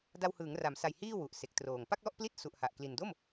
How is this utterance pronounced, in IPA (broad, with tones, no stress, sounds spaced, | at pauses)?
d a˧ w h ɯː˩˦ ŋ r a˩˦ m s a˨˩ j h iː˥˩ w u˨˩ ʔ s e˨˩ k̚ t r oː˨˩ ŋ p a˥˩ k̚ l ɔ˥˩ ʔ p l i˦˥ t̚ s u˨˩ ʔ h a˨˩ ʔ k l i˨˩ n d o˥˩ m